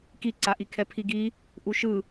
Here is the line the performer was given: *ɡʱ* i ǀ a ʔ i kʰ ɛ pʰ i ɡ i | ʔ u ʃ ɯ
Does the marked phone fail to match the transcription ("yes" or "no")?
yes